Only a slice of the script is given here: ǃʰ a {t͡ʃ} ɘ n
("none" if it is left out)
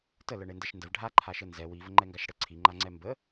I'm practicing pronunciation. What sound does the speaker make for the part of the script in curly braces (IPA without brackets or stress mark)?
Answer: ʃ